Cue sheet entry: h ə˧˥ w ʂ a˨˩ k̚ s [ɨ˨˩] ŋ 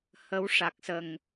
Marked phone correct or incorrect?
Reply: incorrect